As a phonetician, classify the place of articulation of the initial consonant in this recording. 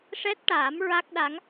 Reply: retroflex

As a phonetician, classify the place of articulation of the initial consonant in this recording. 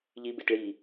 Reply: palatal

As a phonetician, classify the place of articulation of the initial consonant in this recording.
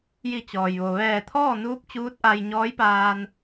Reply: palatal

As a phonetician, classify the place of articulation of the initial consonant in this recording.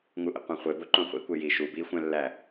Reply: velar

